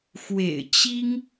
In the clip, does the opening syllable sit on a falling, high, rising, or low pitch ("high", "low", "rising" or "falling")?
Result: low